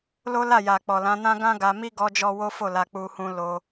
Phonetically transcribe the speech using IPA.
lo˦la˦˨ ja˨k͡pɔ˨lã˨˦nã˦ ɡã˦ɡa˧mi˦ ɡɔ˦d͡ʒɔ˦ wo˦fo˦˨la˧k͡pu˧ hũ˧ lo˧

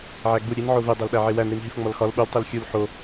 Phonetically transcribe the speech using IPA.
ʕæɡ͡bu ɾʲen ʕove dˤælɗæʕewæn ɾinɦifŋ͡mɒlxɒl ɓul tˤelxʲul ħo

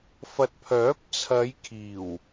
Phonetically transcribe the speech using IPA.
fɐ˨t̚pʰœː˨˥p̚ t͡sʰɐ˨˧jkʰiː˨˩w

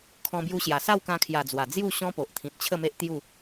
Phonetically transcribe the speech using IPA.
kʰɔ̃˧bju˧ɕja˨˩ sa˥˧wkã˧kʰja˨˩ d͡zwa˨˩d͡zju˥˧ ɕɔ̃˦po˨ʔt̪ʰĩ˨t̚t͡ɕʰə˥˧ me˦ʔt̪ju˥˧

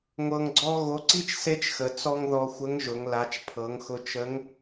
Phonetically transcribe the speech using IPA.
ŋʷɤ˧ŋɡ͡ǀɔ˥ ɣo˧˥ ǀi˥t͡ʃ se˥t͡ʃxə˩˧ t͡sɔ˧ŋ ðɔ˧xʷə˧˥ŋʒʊ˩˧ŋ la˩˧t͡ʃpʰɤ˩˧ŋxʊ˧ t͡ʃə˧˥ŋ

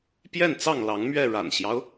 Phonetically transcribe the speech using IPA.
pjɛ˥˨nt͡sɑ˥˨ŋlɑ˨˦ŋmɥɛ˥˨ ɻa̰˨˩nɕjɑ˦ʊ̯

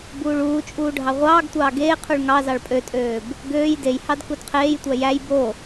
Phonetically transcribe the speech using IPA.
buːɭuːt͡ʃʼuː ɖʱɑʁʷɑːɡtʷɑː ɡeːqʰuɭ ŋɑ zɑɭpʼøtʼøːb | ɡøːj dejhɑd kudqʰeːjtʷæ jæj bo

